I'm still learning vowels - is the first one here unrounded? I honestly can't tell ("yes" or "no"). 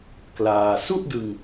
yes